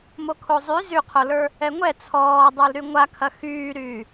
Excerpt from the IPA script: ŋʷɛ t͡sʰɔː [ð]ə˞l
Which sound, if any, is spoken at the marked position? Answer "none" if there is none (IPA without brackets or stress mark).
dˤ